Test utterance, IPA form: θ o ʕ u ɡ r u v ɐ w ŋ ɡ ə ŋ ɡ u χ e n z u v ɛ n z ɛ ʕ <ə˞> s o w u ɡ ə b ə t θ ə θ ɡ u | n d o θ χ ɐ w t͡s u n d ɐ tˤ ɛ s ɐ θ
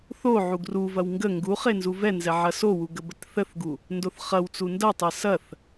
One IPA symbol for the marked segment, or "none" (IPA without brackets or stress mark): ɐ